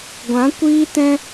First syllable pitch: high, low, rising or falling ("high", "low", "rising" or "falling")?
rising